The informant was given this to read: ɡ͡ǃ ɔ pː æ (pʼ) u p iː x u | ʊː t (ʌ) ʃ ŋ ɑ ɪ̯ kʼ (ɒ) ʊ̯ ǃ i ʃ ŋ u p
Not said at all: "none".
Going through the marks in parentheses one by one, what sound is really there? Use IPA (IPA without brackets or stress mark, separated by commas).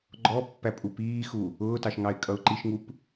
pʼ, ɑ, ʌ